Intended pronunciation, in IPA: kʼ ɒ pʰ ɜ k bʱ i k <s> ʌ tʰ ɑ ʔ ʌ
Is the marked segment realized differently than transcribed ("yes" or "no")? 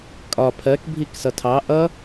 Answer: no